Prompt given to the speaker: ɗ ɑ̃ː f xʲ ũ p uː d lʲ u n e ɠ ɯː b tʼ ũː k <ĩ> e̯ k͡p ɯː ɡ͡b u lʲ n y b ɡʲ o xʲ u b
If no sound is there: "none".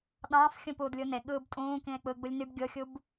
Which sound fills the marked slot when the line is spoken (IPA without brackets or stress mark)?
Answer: ĩ